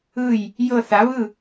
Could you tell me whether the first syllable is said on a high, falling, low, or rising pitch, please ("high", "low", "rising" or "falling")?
falling